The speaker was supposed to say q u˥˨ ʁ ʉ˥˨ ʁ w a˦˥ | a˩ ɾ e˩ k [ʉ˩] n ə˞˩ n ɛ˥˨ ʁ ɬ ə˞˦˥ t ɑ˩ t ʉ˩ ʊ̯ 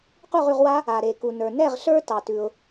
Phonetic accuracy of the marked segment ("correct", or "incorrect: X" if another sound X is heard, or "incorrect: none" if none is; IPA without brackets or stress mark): incorrect: u˩